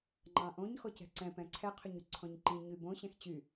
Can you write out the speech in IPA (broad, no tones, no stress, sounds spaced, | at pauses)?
ŋ͡ǃ ɑ̃ ʔ õ ɲ x ɔ c ɛ̤ ǀ ɛ̃ p ɛ̃ ǀʰ ɛ qʰ ʏ ɲ y ǀʰ ɔ̃ ɲ ǃ ĩ ɲ y b õ ɕ ɛ̃ x t͡ɕ y